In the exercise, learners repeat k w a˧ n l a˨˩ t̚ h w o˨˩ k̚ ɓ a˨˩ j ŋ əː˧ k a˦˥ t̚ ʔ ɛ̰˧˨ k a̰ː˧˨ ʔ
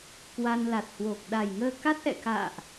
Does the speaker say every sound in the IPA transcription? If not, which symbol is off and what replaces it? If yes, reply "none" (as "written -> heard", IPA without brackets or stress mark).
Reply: ɓ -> ɗ